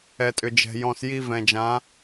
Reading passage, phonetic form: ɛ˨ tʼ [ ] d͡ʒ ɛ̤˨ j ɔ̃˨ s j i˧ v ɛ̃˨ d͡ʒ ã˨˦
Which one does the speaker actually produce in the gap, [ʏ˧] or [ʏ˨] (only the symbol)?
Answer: ʏ˨